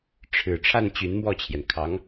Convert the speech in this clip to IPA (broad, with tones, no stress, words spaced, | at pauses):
ʈ͡ʂʰɻ̩˨˩ ʈ͡ʂʰa˥˩n t͡ɕy˧˥nmwɔ˥˩t͡ɕʰjɛ˩n kʰɑ˧˥ŋ